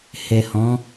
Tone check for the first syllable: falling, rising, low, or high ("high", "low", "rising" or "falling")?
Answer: low